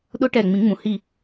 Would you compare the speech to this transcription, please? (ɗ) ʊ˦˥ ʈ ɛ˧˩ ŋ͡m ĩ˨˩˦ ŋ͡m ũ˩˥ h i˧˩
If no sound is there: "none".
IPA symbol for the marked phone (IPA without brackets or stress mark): ɗ